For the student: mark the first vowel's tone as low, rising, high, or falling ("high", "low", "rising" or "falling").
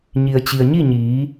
low